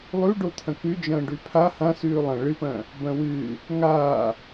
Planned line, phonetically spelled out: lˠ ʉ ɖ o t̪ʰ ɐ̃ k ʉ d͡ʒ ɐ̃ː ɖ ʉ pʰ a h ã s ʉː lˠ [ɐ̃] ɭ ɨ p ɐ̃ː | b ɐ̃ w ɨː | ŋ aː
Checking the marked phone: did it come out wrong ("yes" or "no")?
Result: no